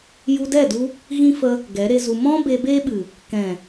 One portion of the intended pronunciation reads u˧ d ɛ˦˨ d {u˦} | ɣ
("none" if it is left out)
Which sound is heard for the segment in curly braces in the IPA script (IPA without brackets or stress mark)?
u˧